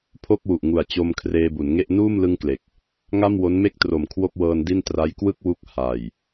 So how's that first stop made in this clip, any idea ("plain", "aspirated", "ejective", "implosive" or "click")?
aspirated